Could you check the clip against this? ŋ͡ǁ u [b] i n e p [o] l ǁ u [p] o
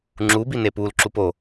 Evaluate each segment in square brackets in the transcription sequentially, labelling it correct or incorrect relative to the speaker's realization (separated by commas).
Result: correct, incorrect, correct